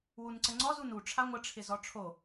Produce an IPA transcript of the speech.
w u n ǀ ə ŋ͡ǀ ɔ z u n u ʈ͡ʂʰ a ŋʷ ə ʈ͡ʂʰ ɪ z ɔ ʈ͡ʂʰ o

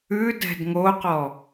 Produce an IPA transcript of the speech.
ʉ d ɛ̤ d ŋ o q ɔ

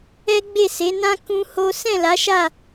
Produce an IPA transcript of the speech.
ɛ˦ ɡ͡b e˦˨ s e˨˦ n ã˦ k ũ˦ h o˦ s ɛ̃˦˨ l a˨˦ ʃ a˦˨

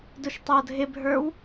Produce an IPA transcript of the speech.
d ʊ ʃ tˤ ʌː dʱ ɪ bʱ ə˞ w

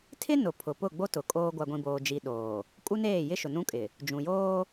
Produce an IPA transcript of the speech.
tʰ ɪ˦ n ʊ˨ pʰ ʊ˨ p ʊ˦˨ ɡ͡b o˦ t ʊ˨ kʼ oː˦ ɡʷ a˨ ɡʷ ĩ˨ b oː˨ d͡ʒ i˨ ɗ oː˨ | kʼ u˦ n eː˦˨ j ɪ˦ ʃ ʊ˨ n ũ˦ kʼ ɪ˨ | d͡ʒ ũ˨ j oː˦

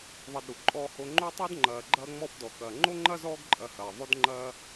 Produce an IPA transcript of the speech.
ðˤ ɐ˨ d ɾ u˩ ǃʼ ɔː˨ h o˨ ŋ͡ǃ o˦ tˤ o˦ d ŋ͡ǃ ɐː˨ ɡ͡ǃ ɐː˦ ŋ͡m ɔ˦ f d ɔ˩ k ɐ˩ ŋ͡ǃ o˥ ŋ͡ǃ ɐ˥ z ɔː˦ ɡ ǃʼ ɐ˨ h ɐː˩ ðˤ o˦ d ŋ͡ǃ ɐː˦

